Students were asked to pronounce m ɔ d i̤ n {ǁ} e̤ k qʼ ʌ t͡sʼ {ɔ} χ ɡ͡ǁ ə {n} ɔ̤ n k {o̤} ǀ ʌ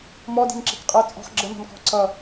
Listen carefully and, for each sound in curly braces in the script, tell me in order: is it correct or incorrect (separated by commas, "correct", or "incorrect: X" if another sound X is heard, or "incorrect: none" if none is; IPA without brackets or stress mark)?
correct, incorrect: ɔ̤, correct, incorrect: ɔ̤